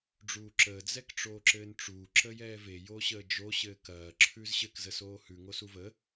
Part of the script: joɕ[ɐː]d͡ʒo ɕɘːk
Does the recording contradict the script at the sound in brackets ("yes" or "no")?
yes